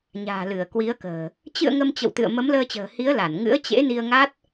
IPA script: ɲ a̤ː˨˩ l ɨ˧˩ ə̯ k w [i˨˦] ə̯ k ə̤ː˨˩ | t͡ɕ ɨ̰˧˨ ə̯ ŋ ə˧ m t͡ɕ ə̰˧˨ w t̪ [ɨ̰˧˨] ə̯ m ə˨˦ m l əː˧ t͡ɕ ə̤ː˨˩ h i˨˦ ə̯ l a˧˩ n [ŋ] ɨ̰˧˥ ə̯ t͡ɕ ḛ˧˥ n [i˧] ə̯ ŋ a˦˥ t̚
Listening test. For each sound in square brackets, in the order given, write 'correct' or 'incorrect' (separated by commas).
correct, correct, correct, correct